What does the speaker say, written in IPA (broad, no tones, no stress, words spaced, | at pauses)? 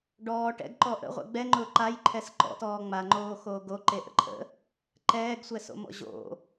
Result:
ɖɔː ʈɛ̰ɡǃɔ ʔə̰ʁʷɛ̰ ɡ͡bɛŋ͡ǃʊː ǃajǃʰɛs ǃɔ̰tɔː ŋ͡maŋ͡ǃoːxoː ɡoǃeʔə̰ ǃʰə̰ | ǃɛːɡsʷɛso̰mɔ̰ ʑo̰